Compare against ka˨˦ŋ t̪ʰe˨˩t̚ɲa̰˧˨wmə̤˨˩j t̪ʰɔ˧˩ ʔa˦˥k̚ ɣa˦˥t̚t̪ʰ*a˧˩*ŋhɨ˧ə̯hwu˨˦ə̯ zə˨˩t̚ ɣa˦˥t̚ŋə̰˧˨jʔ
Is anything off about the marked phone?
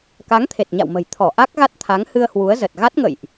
yes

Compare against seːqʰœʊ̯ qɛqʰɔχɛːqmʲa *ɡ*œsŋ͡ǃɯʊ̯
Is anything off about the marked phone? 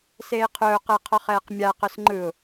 yes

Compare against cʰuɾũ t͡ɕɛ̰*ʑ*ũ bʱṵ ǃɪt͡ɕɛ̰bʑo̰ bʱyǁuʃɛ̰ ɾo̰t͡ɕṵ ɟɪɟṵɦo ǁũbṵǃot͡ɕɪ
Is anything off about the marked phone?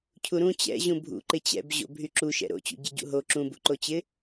no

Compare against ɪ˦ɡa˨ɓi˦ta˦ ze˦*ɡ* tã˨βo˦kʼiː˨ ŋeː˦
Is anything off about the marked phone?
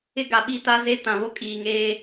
yes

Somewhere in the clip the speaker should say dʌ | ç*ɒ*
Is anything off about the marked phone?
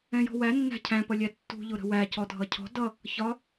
no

